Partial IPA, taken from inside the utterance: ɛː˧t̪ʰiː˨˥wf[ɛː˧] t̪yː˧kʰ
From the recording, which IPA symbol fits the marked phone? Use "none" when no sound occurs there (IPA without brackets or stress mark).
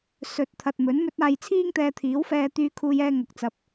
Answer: ɛː˧